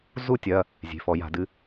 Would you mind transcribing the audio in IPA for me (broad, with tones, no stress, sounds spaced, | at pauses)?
z u˥˨ tʲ ɐ˩˧˩ | zʲ e̤˩˧˩ f ɔ˧˩˧ j a̤˧˩˧ d ɨ˩˧˩